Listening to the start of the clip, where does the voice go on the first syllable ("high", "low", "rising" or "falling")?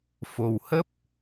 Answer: low